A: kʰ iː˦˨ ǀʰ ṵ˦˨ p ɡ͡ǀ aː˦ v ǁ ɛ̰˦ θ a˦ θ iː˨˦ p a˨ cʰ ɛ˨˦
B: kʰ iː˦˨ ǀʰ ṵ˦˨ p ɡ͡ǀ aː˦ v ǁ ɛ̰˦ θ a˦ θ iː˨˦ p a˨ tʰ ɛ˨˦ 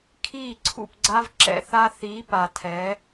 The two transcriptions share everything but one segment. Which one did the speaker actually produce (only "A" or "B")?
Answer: B